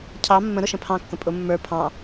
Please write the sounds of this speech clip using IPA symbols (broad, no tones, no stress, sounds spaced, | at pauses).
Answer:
cʰ ɑ mː ə̃ ɾ ʊ ʃ ə̃ pʰ ɑ̃ kː ə̃ pʼ ʊ mː ə˞ pʰ ɑ̃